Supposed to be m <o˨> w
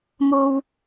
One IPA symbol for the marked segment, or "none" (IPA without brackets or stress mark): o˥